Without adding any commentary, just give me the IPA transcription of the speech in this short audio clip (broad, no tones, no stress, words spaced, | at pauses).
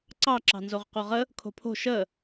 ǀɑǁɑ̤nzoʁ qoʁə | kʰo̤pʰo̤ ʃə